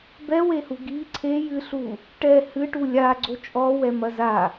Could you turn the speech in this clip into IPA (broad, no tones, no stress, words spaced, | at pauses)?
bɛwehu ɡi ǀʰe jɨɬu | ʈɛ hɨʈu lʲa ɡ͡ǀot͡ʃʼɔwɛmɐ za